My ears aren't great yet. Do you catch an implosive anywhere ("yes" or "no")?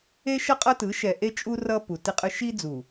no